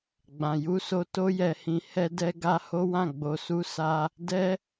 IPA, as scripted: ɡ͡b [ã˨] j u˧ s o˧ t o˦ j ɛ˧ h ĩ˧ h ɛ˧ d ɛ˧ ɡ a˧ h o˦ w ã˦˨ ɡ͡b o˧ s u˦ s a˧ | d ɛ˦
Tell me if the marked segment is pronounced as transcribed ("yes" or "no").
yes